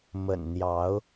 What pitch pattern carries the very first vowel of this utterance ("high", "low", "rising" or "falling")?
low